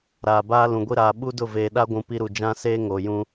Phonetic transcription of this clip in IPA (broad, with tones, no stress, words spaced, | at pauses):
ɾaː˨baː˦ lũ˨ɡʷi˦ ɾaː˨ɓu˦dʊ˦˨ veː˨ ɗa˦ɡʷũ˨ pi˦ɾu˨ d͡ʒã˦seː˦ ŋo˨jũ˦